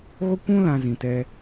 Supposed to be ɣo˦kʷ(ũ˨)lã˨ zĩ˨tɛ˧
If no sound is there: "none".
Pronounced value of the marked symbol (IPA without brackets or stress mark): ũ˦